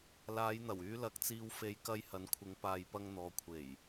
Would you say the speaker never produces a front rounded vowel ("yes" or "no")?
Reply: no